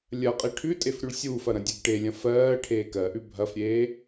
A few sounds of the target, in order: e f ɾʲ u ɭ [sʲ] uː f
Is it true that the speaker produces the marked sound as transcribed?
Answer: yes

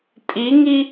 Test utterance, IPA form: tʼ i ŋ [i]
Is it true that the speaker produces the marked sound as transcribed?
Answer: yes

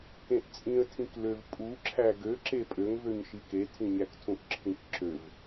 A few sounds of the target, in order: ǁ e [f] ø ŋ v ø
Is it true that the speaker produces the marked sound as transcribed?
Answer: no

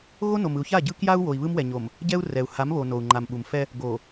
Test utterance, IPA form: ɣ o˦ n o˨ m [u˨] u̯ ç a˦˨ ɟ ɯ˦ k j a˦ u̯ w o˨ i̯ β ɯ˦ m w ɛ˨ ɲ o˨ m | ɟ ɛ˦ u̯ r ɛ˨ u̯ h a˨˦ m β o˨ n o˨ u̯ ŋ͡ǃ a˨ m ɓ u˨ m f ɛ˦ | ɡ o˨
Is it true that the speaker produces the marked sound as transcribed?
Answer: no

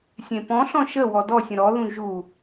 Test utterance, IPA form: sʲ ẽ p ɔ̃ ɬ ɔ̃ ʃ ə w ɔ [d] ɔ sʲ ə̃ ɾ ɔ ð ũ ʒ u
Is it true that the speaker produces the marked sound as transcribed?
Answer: yes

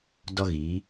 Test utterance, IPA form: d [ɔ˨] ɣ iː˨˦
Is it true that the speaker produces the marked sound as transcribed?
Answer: no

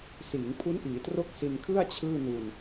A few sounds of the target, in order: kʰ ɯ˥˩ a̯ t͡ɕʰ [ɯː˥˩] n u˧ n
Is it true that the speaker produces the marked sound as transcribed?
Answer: yes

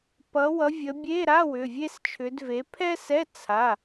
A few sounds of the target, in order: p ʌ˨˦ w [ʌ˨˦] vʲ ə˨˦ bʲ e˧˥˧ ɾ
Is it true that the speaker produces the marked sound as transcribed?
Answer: yes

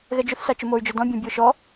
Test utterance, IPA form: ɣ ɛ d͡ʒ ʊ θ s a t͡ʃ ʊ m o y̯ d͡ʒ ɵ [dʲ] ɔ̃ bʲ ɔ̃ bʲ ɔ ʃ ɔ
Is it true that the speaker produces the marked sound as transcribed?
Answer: no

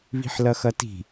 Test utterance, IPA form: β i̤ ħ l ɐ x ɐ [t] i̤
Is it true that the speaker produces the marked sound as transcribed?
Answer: yes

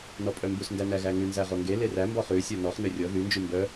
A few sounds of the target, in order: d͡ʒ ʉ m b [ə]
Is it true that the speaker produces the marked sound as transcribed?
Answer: no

